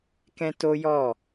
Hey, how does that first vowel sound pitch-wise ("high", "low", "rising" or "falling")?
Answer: high